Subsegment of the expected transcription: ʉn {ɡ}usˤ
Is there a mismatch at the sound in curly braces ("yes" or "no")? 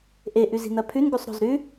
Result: no